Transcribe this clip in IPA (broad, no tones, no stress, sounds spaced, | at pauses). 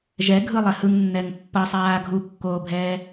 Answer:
ʒ ɛ ɡʱ ɯ lˠ ɛ h ɯ ŋ nː ɛ ŋ pː ʌ sˤ aː ɡʱ u kː oː bʱ ɛː